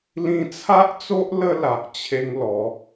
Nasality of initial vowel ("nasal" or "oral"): nasal